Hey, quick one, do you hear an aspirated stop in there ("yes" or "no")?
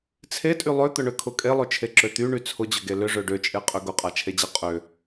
yes